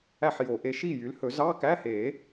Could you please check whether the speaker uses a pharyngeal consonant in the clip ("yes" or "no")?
yes